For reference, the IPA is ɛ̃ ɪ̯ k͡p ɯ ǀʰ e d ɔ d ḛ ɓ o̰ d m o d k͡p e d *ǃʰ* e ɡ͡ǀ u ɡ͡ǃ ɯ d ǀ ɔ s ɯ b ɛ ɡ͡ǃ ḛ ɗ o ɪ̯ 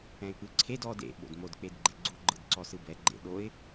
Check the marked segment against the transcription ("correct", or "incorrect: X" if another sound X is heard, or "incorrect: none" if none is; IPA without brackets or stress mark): incorrect: ɡ͡ǃ